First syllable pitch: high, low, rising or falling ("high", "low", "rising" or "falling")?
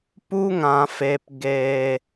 high